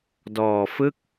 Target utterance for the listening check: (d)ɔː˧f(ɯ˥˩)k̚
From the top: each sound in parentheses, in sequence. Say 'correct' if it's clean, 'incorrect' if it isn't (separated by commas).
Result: correct, correct